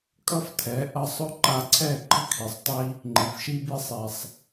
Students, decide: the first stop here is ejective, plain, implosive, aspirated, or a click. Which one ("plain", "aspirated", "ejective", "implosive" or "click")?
ejective